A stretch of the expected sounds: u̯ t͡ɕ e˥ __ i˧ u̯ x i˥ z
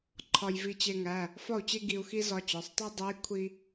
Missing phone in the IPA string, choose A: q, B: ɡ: B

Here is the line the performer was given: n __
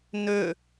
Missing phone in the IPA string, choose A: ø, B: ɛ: A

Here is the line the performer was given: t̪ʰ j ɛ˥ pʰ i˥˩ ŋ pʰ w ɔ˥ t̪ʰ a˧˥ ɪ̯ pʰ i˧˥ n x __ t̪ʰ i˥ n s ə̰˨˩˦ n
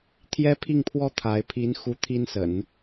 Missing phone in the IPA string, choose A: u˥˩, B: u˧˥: B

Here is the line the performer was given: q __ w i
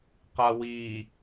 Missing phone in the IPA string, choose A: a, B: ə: A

